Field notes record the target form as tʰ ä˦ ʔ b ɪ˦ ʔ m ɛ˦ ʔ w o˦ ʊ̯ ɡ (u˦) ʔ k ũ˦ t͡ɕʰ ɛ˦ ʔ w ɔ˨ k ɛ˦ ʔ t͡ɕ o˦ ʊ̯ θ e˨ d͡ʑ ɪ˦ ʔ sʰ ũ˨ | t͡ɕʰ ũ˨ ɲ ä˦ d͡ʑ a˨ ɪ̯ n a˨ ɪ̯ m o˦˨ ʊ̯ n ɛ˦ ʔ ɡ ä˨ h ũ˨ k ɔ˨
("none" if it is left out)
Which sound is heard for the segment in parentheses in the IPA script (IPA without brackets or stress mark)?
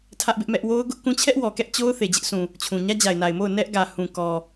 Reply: ʊ˦